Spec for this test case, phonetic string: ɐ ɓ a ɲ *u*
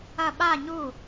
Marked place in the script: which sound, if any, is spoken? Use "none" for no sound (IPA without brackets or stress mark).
u